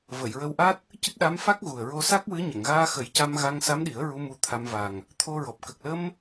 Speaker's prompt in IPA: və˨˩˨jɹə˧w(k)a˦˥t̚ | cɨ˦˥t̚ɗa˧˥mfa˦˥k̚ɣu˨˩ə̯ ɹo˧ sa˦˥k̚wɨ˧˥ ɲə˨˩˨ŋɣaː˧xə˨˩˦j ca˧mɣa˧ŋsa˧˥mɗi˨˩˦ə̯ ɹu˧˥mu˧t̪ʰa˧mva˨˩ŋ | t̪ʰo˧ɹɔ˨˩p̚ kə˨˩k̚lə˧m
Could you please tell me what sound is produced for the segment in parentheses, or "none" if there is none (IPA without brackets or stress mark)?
ʔ